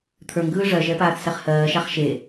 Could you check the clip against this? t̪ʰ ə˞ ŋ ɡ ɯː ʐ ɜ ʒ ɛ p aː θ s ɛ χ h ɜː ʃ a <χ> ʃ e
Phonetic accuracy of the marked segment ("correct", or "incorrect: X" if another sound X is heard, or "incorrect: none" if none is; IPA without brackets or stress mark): correct